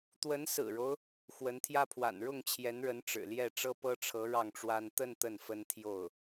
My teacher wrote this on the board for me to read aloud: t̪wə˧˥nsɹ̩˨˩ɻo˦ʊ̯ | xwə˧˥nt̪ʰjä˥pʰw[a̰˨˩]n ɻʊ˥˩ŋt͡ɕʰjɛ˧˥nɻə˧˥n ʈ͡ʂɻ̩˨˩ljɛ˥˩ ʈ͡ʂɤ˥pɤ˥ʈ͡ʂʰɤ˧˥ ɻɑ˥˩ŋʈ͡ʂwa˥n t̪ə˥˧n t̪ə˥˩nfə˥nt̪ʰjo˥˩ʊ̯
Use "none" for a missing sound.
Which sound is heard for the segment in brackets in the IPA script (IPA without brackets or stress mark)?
a̰˨˩